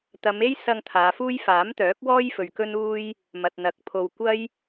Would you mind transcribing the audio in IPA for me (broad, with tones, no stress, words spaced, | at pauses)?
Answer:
t̪ɐ˨˧me˥jsɐ˧ŋ t̪ʰaː˨˧fuː˥j faː˨˥mt̪œː˨˥k̚wɔː˥j fɵ˨ɥkɵ˥nuː˥j | mɐ˨t̚n̪ɐ˨˥k̚pʰo˧w kʷɐ˥j